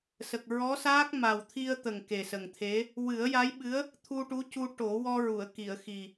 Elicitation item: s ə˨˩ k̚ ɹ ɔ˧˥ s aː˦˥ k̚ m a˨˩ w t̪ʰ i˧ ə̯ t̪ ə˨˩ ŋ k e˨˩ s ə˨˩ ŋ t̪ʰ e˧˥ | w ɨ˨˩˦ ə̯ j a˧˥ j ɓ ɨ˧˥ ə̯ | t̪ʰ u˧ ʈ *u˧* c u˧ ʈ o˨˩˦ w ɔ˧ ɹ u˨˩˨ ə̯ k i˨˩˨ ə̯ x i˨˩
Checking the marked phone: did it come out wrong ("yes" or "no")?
yes